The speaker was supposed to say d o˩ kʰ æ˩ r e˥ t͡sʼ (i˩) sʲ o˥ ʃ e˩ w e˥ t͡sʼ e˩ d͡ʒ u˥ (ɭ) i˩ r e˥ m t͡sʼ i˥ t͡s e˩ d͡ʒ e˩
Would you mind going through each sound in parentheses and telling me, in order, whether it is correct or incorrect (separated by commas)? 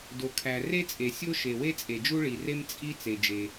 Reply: incorrect, correct